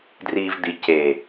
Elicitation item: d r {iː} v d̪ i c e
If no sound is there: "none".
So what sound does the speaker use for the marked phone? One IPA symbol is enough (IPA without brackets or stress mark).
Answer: iː